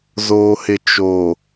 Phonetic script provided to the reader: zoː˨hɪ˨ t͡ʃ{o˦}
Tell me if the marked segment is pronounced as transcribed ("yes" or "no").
no